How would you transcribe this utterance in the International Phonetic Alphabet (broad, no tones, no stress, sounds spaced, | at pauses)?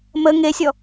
m ə ŋ e sʲ ɔ